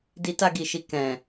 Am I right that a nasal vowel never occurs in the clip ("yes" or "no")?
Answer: no